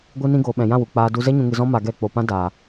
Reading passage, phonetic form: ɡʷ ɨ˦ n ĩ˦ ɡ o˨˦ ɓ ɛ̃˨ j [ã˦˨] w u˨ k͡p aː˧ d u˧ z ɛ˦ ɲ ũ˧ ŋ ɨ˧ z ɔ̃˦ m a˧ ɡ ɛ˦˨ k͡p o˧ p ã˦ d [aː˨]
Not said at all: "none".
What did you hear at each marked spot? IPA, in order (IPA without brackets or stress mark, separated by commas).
ã˦˨, aː˨